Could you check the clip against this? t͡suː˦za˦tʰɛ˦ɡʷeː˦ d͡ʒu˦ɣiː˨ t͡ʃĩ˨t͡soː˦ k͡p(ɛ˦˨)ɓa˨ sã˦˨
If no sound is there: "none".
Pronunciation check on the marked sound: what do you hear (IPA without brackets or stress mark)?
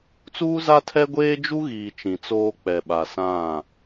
ɛ˨